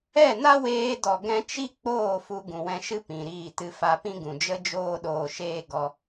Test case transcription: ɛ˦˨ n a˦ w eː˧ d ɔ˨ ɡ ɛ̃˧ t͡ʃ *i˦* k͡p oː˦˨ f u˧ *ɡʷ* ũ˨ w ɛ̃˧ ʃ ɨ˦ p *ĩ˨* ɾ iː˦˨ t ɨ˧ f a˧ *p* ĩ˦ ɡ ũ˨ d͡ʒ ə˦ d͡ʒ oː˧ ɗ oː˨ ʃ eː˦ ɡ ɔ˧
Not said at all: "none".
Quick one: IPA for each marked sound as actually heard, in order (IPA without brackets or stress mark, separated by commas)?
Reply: i˦, ɡ, ĩ˨, p